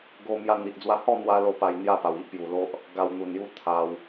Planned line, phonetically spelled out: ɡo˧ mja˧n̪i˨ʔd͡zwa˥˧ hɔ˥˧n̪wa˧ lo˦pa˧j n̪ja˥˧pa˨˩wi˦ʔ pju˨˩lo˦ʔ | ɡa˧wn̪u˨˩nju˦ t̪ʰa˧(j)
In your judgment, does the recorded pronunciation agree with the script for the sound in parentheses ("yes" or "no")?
no